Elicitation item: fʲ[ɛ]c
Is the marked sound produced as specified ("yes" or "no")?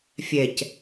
yes